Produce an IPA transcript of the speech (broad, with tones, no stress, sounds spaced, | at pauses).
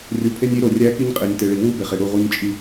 rʲ u˨ pʰ e˦ nʲ i˦ ɾ o˨ rʲ æ˦ k i˦ ɲ qʼ e˨ nʲ t e˨ ɭ i˨ w u˦ b e˨ χ e˨ ɽ u˦˨ ʁ u˦ ɲ t͡ʃʼ i˦